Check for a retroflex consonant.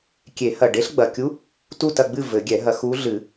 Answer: present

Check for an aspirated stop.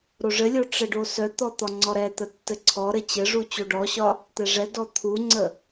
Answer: present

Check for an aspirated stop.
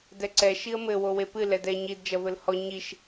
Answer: absent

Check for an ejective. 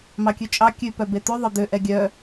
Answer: present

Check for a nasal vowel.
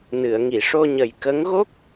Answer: absent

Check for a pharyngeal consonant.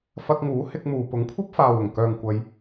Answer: absent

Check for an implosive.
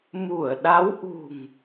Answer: present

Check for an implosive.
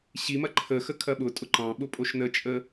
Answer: present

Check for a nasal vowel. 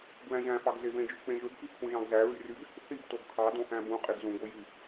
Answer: present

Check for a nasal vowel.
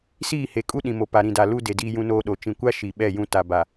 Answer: present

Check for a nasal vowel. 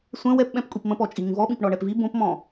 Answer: present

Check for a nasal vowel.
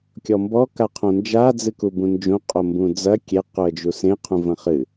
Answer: present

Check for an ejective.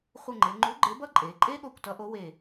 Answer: present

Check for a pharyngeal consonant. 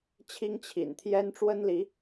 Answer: absent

